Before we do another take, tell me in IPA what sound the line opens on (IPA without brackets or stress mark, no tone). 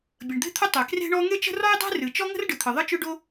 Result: bʲ